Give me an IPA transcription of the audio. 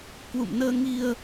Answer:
k w ṵ˧˨ m n əː˧ ŋ i˧ ə̯

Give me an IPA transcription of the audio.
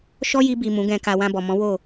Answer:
ʃ ɔ˦ j i˧ b i˨ m ũ˨˦ ɡ ɛ̃˧ k a˧ w ã˧ b ɔ˨ m ɔ̃˨˦ w o˦˨

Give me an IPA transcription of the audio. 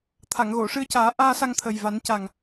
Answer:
t̪ʰ a˨˩˨ ŋ ɣ o˨˩˨ ʂ ɨ˧ ə̯ c aː˨˩˦ ʔ aː˧ s a˧ ŋ t̪ʰ ə˨˩ j v a˨˩˦ n c a˨˩ ŋ

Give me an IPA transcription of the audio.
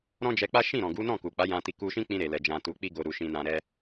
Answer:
ɾ ɔ̃˦ d͡ʒ ɛ˧ k͡p a˦ ʃ ĩ˦˨ ɾ ɔ̃˨ ɡ u˨˦ n ɔ̃˦˨ k u˨ k͡p a˨˦ j ã˧ t i˧ k u˧ ʃ ĩ˦ k͡p ĩ˧ ɾ e˨ l ɛ˨ d͡ʒ ã˧ t u˧ k͡p i˦ ɡ o˧ ɾ u˧ ʃ ĩ˧ n ã˧ ɾ ɛ˦

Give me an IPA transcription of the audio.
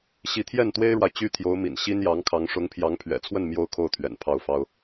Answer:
ɕ i˧˥ t̪ʰ j ɛ˥˩ n t̪ w e˥ ɪ̯ ɻ w a˨ ɪ̯ t͡ɕ y˥ t̪ʰ j o˧˥ ʊ̯ m ḭ˨˩ n ɕ i˥ n j ɑ˧˥ ŋ kʰ ɑ˧˥ ŋ ʂ ʊ˧˥ ŋ pʰ j ɑ˧˥ ŋ pʰ ɥ ɛ̰˨˩ t͡sʰ w ə˥˩ n m j o˥ ʊ̯ kʰ o˥˩ ʊ̯ t̪ʰ ɥ ɛ̰˨˩ n pʰ ɑ˥˩ ʊ̯ f ɑ˥ ʊ̯

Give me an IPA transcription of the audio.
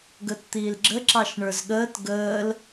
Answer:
ɡ əː t t̪ iː l ɡ͡ǁ ə ǁ ɑ ʃ ɳ ə˞ z ɠ əː t ɡ əː l

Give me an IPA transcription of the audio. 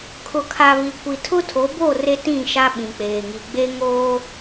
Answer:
kʰ ʊ˨ kʰ a˨ β i˨ kʷ i˨ tʰ ʊ˦ tʰ o˨˦ b o˦˨ r e˦ t ĩ˦˨ ʃ a˦ ɓ ĩ˨ k͡p eː˨ ŋ i˨ ɡ͡b e˦ ŋ oː˦

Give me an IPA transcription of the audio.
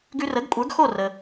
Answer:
ɡ ʉ˧ r ə˩˥ ɡ kʷʼ ə˞˩˥ ɡ x o˥˩ r ə˩

